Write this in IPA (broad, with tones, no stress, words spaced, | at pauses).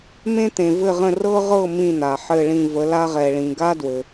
mẽ˥t̪ẽ˨ vɘ˥˧ʁə̃˥˧ rɤ˥ʁɤ˥˧ mĩ˥˧n̪a˨ ħɘ˥˧ɭĩ˥˧ və˨˦la˥ʁɛ˨ɭĩ˨ ɡa˥dwɘ˨